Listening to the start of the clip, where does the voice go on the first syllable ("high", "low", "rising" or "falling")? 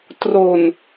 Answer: low